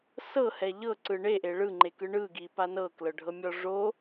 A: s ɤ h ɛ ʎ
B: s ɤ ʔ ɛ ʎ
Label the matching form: A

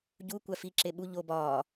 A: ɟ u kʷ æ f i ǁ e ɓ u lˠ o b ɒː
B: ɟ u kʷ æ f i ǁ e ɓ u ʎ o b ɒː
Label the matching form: B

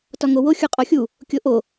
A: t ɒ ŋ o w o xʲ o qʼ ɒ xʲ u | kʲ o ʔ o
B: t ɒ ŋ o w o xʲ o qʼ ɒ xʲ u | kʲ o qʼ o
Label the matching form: A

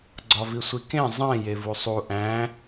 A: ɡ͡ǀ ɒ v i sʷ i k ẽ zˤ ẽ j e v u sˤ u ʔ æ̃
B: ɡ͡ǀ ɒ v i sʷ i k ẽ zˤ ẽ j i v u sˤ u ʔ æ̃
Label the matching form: A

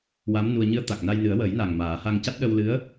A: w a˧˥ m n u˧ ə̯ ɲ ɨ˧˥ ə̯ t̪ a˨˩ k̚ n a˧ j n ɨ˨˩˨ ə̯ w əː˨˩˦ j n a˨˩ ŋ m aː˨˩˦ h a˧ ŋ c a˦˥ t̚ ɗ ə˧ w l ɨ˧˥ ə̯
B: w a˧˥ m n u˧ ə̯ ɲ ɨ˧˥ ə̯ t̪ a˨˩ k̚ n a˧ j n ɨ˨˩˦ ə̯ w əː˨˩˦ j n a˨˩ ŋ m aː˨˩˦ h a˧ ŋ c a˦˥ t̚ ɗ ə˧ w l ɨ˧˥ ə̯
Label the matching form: B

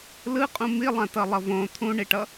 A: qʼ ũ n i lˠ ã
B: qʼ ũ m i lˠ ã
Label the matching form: B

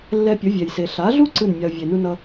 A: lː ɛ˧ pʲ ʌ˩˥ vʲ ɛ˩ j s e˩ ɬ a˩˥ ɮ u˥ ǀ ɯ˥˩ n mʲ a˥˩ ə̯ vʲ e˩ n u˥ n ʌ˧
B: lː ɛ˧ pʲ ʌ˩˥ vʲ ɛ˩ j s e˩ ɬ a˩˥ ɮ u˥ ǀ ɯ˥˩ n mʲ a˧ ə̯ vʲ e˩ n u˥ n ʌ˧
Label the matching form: B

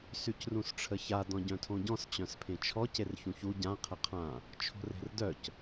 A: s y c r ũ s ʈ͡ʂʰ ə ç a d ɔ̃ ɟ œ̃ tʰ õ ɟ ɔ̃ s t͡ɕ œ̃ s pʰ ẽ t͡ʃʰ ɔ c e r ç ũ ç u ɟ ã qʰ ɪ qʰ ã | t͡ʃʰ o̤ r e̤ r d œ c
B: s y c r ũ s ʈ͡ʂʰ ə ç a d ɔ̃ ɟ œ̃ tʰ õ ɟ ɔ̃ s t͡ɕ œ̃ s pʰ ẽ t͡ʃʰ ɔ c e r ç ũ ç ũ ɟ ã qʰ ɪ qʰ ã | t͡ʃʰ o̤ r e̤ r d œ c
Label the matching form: A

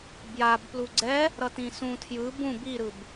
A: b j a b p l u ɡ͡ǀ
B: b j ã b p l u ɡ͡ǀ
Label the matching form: A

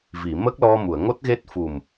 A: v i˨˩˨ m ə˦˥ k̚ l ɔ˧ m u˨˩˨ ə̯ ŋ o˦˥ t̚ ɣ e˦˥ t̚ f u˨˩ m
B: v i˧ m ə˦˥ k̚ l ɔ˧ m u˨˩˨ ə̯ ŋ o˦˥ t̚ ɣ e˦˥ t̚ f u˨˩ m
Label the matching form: A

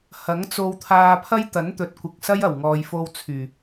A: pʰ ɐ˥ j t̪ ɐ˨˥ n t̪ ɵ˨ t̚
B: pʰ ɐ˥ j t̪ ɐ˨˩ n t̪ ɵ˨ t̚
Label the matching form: A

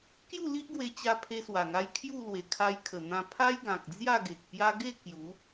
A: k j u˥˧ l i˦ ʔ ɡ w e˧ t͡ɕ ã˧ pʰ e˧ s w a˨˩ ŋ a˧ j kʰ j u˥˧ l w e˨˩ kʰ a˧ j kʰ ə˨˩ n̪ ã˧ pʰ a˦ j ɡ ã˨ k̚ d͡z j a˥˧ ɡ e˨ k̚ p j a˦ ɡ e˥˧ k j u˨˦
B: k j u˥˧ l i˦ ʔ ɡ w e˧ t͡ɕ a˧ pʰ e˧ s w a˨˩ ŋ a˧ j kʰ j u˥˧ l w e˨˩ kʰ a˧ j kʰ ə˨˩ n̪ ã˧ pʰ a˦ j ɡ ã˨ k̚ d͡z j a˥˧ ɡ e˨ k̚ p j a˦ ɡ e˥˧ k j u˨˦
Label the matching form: B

